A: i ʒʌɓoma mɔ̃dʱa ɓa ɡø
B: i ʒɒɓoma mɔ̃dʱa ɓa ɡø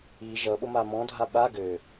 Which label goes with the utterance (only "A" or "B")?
A